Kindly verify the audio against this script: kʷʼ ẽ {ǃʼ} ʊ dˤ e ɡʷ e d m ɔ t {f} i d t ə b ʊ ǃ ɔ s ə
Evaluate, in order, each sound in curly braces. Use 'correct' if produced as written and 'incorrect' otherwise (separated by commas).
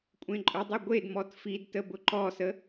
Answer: correct, correct